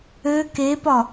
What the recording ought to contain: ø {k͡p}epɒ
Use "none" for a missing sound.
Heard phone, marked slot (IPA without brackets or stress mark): k